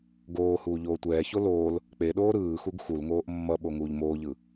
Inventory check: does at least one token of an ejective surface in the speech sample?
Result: no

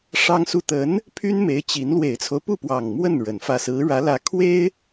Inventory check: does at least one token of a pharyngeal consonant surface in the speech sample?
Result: no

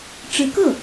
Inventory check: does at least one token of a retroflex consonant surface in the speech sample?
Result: yes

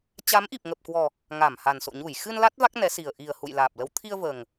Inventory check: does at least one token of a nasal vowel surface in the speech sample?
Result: no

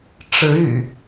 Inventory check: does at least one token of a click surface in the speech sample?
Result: no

